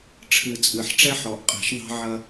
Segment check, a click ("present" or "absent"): absent